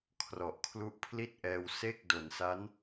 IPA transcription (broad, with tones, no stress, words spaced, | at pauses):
kʰrɔ˨˩ʔkʰlu˦˥ʔpʰli˥˩t̚ʔɛː˧w se˥˩k̚ do˨˩nsa˦˥n